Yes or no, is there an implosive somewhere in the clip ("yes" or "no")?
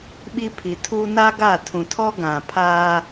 yes